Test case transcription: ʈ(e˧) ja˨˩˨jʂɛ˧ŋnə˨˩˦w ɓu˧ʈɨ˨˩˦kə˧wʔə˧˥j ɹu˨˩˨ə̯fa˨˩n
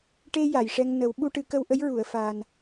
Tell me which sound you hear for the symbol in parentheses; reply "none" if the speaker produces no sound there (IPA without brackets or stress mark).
e˧